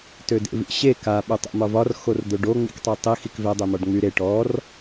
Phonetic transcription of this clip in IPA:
t ø d ḛ v ḭ ɕ e k a ɓ ø tˤ ḛ m ɒ v ɒ r x o r d̪ o ɖ o ŋ͡m ḭ k tˤ ø tˤ i x i k v ɛ dˤ e m ɒ ɖ ŋ͡m y ɾ e ʈ ɔ r

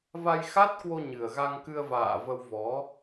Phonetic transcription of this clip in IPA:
v a˧ j x a˦˥ t̚ k w o˧ ɲ ɨ˨˩ ə̯ ɣ a˧ ŋ k ɨ˧ ə̯ v a̰ː˧˨ v ə˧ w v ɔ˨˦

